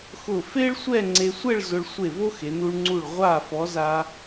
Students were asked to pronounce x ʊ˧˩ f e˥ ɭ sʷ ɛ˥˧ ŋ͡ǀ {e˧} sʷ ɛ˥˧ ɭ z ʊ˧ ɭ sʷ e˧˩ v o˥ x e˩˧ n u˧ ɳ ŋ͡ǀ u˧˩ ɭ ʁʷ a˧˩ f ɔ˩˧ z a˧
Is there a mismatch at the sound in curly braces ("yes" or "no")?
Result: no